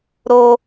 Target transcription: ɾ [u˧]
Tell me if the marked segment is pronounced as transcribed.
no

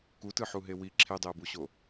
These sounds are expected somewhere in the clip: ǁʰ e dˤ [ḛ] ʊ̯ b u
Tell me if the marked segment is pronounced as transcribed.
no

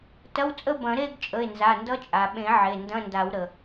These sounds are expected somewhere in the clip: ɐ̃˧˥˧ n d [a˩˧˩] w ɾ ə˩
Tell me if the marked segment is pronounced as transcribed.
no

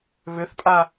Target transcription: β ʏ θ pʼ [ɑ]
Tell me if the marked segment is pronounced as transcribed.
no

